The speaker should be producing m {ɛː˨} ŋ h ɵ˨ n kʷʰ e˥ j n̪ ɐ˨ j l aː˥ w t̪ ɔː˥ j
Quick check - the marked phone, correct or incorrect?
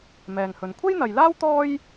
correct